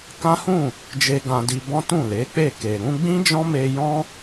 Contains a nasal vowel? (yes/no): yes